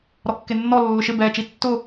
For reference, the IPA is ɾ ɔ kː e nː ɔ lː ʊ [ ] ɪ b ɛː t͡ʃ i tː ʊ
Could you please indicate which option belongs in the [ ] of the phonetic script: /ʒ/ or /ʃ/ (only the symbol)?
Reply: ʃ